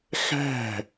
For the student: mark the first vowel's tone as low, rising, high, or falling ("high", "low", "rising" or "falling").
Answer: falling